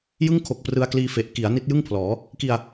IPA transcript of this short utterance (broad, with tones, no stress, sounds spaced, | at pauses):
j ɯ˥˩ ŋ kʰ o˨˩ k̚ p r ɯ˧ a̯ k l iː˧ f e˨˩ ʔ k i˩˦ a̯ n i˦˥ t̚ j ɯ˥˩ ŋ pʰ l ɔː˩˦ | k i˧ a̯